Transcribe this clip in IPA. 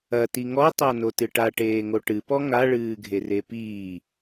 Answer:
ɐ t i ŋ ɔ tˤ a n o t ɨ ʈ a ʈ eː ŋ o ʈ ɨ p ɔ ŋ a ɭ ɨː ɡʱ e r e p iː

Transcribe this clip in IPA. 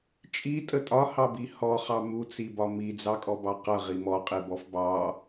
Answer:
t͡ʃʼ i tʼ ə tʼ ɒ h ɑ b i h ɔ χ ɑ m u t͡s i b ɒ m i d͡z ɑ kʼ ɔ b ɑ q ʌ ʁ i m ɔ qʼ i b ɔ f b ɑ

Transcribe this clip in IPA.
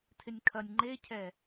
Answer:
tʰ ɪ nʲ kʰ ɐ nʲ ŋ͡ǃ e cʰ ɛ

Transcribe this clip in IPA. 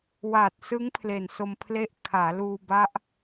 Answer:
w aː˨˩ t̚ s ɯ˦˥ ŋ pʰ l e˨˩ n s o˧ m pʰ l e˥˩ ʔ kʰ aː˩˦ l uː˧ b a˦˥ ʔ

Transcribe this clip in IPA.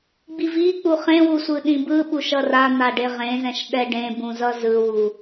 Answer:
ɡ͡b i v i k͡p u χ ẽ w u sʷ ɯ ɗ ĩ b ɯ ɓ u ʃ ʌ r a n̪ a ɖ e ʁ ẽ z ɛ̃ ʃ ɗ ɛ ɖ ẽ b ũ z ʌ z ɯ w u

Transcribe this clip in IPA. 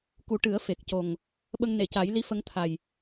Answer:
k u˨˩˦ ʈ ɨ˨˩˦ ə̯ f e˨˩ k̚ c o˨˩ ŋ | ɓ ə˧ ŋ n e˨˩˨ c a˨˩˦ j l i˧˥ f ə˧ ŋ t̪ʰ a˨˩ j

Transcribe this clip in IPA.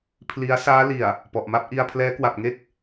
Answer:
pʰ l i˦˥ a̯ s aː˦˥ l i˨˩ a̯ | p ɔ˨˩ ʔ m a˥˩ p̚ ʔ i˧ a̯ pʰ l ɛː˦˥ k w a˨˩ p̚ ŋ e˥˩ k̚

